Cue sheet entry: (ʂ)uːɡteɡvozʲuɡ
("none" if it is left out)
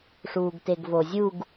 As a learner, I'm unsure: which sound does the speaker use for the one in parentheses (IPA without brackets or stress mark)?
ʂ